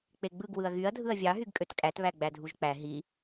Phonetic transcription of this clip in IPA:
k͡p e ɡ͡b ɯ ɡ w ɯ ɐ̯ ɣ y ɐ̯ dʱ ɯ ɐ̯ vʲ ɑ ɦ y ɡ kʼ ø t kʼ æ t β æ ɡ͡b æ dʱ u ʒ k͡p æ ɦ i

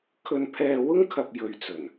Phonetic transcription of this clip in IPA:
kʰ ɵ˧ n pʰ ɛː˧ w ʊ˥ ŋ kʰ ɐ˨ p̚ j ɵ˨ ɥ t͡s ɵ˨˩ n

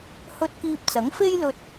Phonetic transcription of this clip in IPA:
h ɵ˧ t̚ k iː˧ p̚ t͡s ɐ˨˥ ŋ f e˥ j l ɵ˧ t̚

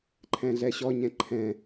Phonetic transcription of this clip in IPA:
ǃʰ ɛ̃ ɮ ɛ ɕ ɔ ɲ ɛ̃ ǃʰ ɛ̃

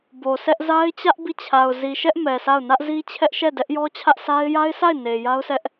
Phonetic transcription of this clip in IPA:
b o˨ s ɛ˦ ʔ z a˦ ɪ̯ t͡ɕ ä˦ ʔ b i˦˨ t͡ɕʰ a˨ ʊ̯ z i˨ ʃ ɛ˦ ʔ m ɛ˨ sʰ a˦˨ ʊ̯ n ä˦ ʔ z i˦ t͡ɕʰ ɛ˦ ʔ ʃ ɛ˦˨ d ɛ˦ ʔ j ɔ˦ t͡ɕʰ ä˦ ʔ s a˦ ɪ̯ j a˦ ɪ̯ sʰ a˦˨ ɪ̯ n e˨ j a˦ ʊ̯ s ɛ˦ ʔ

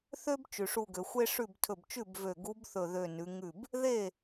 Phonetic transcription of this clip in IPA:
θ ø˥ b t͡ʃ ʉ˩ ʂ u˧˩ ɡ ø˩ xʷ e˥ ʂ ʉ˥˩ b tʰ ɵ˧˩ b t͡ʃ ʉ˥˩ b v ø˧˩ ɡ u˧˥ b θ ɵ˧˩ ð ø˧˩ n ʉ˩˧ ŋ ʉ˥˩ b | ð e˥˩

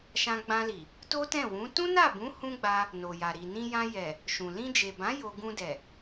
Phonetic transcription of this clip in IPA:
ʃ ã˧ ɡ͡b ã˧ l i˨ | t o˦ t ɛ̃˦˨ w ũ˨˦ t ũ˦ n a˦˨ b ũ˨˦ h ũ˦ ɡ͡b a˧ | n o˨ j a˨ ɾ i˨ n ĩ˧ j ã˧ j ɛ˨ | ʃ ũ˨ l ĩ˧ d͡ʒ e˨ b ã˨˦ j o˧ ɡ ũ˧ d ɛ˨

